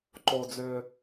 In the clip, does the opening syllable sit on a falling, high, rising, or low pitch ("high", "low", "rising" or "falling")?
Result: low